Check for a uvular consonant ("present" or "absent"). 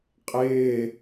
present